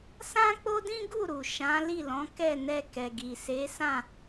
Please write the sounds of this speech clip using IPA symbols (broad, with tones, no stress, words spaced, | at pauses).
sã˦k͡po˦dĩ˦ ɡu˦˨ ɾu˨ʃã˨˦ li˦˨lɔ̃˨˦kɛ˦˨nɛ˧ kɛ˨ɡi˨se˨˦sã˦˨